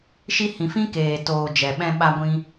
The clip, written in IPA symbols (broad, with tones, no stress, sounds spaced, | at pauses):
ʃ i˦ h ĩ˧ f ĩ˦ k eː˨ t oː˨ d͡ʒ ɛ˨ ɓ ɛ̃˧ ɓ a˧ ɡʷ ĩ˧